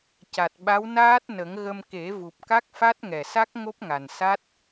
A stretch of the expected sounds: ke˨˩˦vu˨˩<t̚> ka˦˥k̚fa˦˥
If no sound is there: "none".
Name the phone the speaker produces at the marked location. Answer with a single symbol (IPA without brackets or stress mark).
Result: p̚